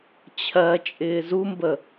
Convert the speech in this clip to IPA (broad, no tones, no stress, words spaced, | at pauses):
t͡ɕʰɜ t͡ʃʼɪːzumbə